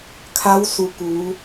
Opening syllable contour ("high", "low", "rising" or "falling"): rising